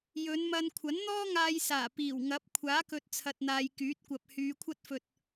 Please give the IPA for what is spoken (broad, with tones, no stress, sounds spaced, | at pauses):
j ɵ˨˧ n m ɐ˧ n kʷʰ ɐ˨˥ n n̪ ɔː˥ ŋ aː˧ j s aː˨˩ p iː˨˩ w ŋ ɐ˨˥ p̚ kʷʰ aː˨˥ k ɵ˨ t̚ t͡sʰ ɐ˨ t̚ n̪ aː˨ j k yː˨˥ t̚ kʷ ɐ˨ p̚ h yː˨˧ kʷʰ ɐ˥ t̚ f ɵ˧ t̚